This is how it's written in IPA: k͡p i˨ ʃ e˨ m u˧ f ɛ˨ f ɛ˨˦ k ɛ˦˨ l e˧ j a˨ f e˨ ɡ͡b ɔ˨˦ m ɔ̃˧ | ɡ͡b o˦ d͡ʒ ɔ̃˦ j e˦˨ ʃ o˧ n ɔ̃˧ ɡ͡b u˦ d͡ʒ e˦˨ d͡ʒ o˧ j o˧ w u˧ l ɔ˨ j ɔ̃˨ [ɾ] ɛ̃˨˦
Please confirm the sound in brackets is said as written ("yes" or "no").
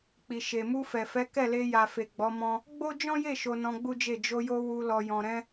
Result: yes